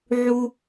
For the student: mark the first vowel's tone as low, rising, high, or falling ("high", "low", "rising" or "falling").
high